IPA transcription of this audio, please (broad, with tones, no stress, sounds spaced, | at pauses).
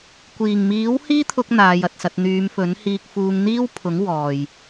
kʷ iː˨˩ ŋ m iː˨˥ w h iː˥ t̪ʰ ʊ˧ k̚ n̪ aː˨˧ j ɐ˨ t̚ s ɐ˧ t̚ n̪ yː˨˧ m f ɵ˨˥ n h iː˧ k̚ f uː˧ ŋ n̪ iː˥ w pʰ ʊ˨˥ ŋ w ɔː˨ j